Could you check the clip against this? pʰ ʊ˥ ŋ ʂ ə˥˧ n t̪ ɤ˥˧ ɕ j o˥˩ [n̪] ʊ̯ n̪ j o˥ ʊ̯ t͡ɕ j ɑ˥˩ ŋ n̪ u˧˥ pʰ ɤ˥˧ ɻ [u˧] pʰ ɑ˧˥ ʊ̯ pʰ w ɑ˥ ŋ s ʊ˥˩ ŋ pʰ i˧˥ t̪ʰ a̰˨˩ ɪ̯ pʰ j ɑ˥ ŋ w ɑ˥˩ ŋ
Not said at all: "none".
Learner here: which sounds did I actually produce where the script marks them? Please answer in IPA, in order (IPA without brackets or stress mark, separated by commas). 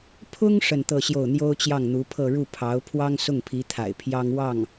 none, u˥˩